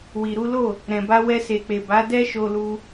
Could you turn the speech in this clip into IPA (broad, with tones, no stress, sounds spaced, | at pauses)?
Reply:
w i˨ ɾ u˨˦ l o˦˨ | ɾ ɛ̃˨ b a˧ w ɛ˧ s e˨ k͡p e˨ b a˨˦ d ɛ˦ ʃ o˧ l u˧